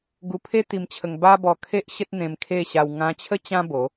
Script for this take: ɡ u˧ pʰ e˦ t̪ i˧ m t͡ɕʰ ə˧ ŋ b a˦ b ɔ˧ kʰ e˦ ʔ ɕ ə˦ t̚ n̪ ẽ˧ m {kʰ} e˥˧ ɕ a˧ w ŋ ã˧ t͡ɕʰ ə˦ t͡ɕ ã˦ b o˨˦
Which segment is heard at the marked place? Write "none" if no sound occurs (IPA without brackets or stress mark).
kʰ